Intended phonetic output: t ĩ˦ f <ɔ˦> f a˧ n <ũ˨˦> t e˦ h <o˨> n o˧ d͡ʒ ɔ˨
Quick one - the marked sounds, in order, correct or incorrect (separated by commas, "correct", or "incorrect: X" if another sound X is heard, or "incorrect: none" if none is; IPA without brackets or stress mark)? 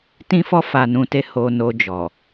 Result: correct, incorrect: ũ˧, incorrect: o˧